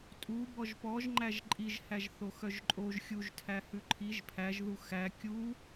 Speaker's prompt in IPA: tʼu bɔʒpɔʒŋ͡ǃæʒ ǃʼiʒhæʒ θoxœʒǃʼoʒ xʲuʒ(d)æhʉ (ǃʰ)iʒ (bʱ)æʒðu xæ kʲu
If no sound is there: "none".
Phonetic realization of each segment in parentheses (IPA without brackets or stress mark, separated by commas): tʰ, ǃʰ, pʰ